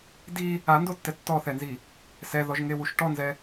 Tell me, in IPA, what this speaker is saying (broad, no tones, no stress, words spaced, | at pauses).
di | andotːɛ tːɔθɛnzi | sɛðɔʒŋewuʃ ʈɔnzɛ